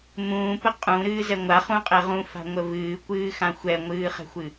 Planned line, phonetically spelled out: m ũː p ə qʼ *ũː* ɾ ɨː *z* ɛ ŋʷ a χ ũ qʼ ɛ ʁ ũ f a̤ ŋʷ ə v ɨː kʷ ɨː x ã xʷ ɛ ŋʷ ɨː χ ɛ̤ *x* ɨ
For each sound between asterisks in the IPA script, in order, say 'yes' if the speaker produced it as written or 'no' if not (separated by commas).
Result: no, yes, no